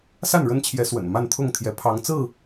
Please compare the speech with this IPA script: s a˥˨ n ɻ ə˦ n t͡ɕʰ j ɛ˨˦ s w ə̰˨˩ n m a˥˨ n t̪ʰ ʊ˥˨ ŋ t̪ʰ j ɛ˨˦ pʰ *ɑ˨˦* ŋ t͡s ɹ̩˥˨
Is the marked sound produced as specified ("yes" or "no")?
yes